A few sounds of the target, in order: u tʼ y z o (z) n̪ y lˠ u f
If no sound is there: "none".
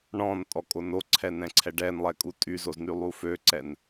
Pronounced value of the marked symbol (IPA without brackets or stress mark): z